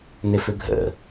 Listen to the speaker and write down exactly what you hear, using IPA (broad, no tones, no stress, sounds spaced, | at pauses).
n ɪ f ʏ ɡʱ ə̰